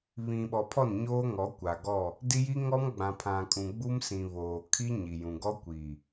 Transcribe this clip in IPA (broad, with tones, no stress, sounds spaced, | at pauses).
β ĩ˨ ɓ ɔ˨ pʰ ɔ˦˨ n ɲ oː˦ ŋ ɔ˨˦ kʷ a˨ ɡ ɔ˦˨ | d i˦ j i˦ ŋ ɔ˦ m ɡ͡b ã˨ pʰ ã˨ kʼ ũ˨ ɡ͡b u˦ m s ĩ˨ β oː˨ kʰ i˦ ɲ i˨ j ũ˨ ɡ ɔ˦ kʷ i˨